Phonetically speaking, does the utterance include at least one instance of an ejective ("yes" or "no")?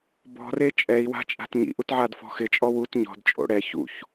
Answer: yes